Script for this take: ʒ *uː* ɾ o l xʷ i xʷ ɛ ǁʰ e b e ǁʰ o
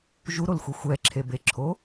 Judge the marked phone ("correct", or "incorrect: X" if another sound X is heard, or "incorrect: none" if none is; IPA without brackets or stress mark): incorrect: u